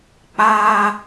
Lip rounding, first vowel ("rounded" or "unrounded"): unrounded